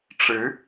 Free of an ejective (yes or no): yes